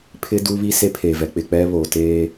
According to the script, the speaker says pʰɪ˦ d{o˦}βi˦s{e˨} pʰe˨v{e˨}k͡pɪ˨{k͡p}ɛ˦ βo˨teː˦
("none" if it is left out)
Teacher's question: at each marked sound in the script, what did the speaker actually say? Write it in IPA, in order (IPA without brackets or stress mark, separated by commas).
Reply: u˦, e˦, ɛ˨, k͡p